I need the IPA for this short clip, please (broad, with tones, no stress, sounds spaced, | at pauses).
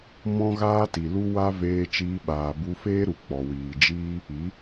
m ɔ̃˦ ɣ aː˦ t i˨ l u˦ w a˦ v eː˧ t͡ʃ iː˧ ɓ aː˨ b u˧ f eː˦ ɾ u˨ k͡p ɔ˨ w iː˨ d͡ʒ iː˦ | i˨˦